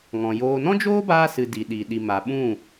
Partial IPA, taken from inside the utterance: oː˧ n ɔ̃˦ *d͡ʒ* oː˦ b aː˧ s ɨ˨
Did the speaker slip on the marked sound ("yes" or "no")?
no